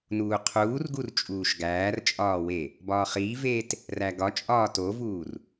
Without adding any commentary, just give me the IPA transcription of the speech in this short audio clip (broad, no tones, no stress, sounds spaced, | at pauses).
n uː qʰ uː r ɡ u r t͡ʃʼ uː ʃ ɡ æː r t͡ʃʼ ɒː w e | b ɒː χ iː v eː t | r æ ɡ ɒ t͡ʃʼ ɒː t o v uː r